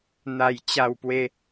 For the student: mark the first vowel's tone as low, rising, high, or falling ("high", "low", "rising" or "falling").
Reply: falling